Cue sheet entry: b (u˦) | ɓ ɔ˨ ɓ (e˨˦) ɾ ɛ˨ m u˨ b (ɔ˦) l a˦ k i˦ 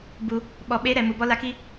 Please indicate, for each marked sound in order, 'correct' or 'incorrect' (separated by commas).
incorrect, correct, correct